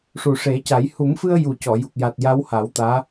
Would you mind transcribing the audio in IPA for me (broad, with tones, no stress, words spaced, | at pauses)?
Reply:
ʂu˨˩ʂe˨˩˦ca˨˩˦j hu˨˩˦mfɨ˧ə̯ ju˨˩cɔ˨˩˨ju˨˩k̚ja˨˩t̚ ja˧˥wha˨˩˦wt̪aː˧˥